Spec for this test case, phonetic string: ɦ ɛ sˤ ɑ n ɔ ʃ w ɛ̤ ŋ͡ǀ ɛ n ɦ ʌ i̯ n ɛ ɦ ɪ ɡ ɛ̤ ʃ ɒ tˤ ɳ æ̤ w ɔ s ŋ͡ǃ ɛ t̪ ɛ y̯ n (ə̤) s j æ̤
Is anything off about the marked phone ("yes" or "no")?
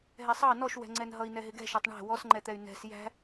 yes